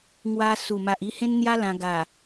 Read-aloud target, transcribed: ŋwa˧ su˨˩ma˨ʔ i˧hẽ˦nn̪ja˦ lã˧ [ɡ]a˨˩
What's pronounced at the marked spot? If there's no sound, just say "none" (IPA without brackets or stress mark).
ɡ